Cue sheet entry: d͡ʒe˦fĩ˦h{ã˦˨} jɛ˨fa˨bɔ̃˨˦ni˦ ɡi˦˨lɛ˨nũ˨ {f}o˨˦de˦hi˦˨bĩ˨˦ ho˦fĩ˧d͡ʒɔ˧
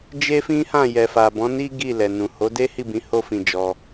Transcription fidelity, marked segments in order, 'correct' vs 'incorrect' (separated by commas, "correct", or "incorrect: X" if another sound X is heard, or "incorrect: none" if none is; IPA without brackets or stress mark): correct, incorrect: h